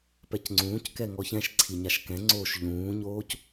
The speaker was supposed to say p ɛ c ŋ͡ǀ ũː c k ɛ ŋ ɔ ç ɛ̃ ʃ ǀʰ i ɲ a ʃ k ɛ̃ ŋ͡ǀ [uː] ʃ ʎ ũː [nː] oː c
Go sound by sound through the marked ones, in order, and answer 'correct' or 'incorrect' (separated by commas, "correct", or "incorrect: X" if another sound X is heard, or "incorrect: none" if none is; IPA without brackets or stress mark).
incorrect: oː, incorrect: ɲ